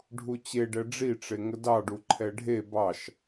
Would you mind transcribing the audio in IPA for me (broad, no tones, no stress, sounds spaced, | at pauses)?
ɖʱ u t͡ɕ e ɖ ɛ ɖ͡ʐ i ʈ͡ʂ e ŋ ə d ɑ ɖ u ǃʰ ɛ ɖʱ e b ɑ ʃ